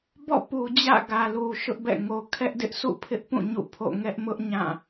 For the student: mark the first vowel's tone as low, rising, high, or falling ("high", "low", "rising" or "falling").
falling